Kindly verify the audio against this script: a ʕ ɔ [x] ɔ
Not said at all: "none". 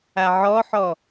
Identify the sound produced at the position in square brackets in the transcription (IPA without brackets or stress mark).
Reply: ħ